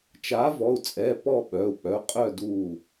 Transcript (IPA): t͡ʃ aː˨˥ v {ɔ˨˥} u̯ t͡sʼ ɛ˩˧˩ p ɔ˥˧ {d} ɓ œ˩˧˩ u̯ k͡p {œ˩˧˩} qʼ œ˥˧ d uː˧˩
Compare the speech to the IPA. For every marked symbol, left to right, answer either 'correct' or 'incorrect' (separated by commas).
incorrect, incorrect, correct